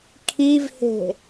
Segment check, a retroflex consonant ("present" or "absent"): absent